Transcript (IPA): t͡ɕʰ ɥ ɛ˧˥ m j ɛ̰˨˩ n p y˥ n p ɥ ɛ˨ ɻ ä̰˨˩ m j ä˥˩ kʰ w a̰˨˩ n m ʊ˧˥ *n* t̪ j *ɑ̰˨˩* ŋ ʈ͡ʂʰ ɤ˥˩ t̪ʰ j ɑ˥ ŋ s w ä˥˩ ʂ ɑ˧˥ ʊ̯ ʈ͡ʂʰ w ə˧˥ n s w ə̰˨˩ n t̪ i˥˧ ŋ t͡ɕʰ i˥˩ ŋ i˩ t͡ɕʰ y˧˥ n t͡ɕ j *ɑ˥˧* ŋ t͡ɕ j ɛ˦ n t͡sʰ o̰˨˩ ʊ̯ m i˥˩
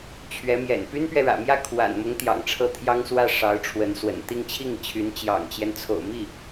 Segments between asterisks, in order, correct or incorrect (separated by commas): incorrect, correct, incorrect